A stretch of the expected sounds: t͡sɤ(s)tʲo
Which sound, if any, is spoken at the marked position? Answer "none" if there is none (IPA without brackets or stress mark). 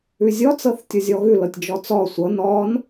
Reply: θ